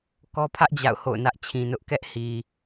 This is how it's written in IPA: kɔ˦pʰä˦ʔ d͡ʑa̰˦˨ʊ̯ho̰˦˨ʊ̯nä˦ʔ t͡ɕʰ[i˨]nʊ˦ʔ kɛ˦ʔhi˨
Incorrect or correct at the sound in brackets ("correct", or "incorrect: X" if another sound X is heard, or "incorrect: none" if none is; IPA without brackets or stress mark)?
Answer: incorrect: ĩ˨